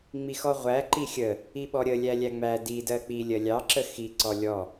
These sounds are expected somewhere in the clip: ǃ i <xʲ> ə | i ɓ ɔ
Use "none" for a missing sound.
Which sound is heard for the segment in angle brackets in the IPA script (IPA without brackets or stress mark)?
xʲ